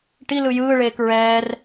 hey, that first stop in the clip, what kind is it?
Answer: plain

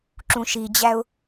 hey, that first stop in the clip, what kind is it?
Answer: click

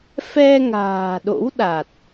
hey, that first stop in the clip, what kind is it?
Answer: implosive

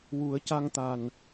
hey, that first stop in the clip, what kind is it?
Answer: plain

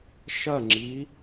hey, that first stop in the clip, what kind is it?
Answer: click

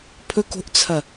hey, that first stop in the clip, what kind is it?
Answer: aspirated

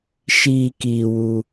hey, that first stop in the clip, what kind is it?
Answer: plain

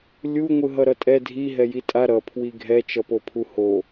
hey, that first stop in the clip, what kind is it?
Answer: ejective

